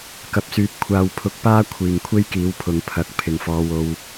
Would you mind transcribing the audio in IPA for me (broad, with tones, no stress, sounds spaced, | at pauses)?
k ɐ˨ p̚ s yː˨ p̚ kʷʰ aː˨ w pʰ ʊ˧ k̚ p aː˥ kʷʰ iː˨ ŋ kʷʰ e˥ j k iː˨˥ w pʰ ʊ˨ ŋ pʰ ɐ˨ k̚ pʰ ɪ˨ ŋ f ɔː˨˧ w o˧ w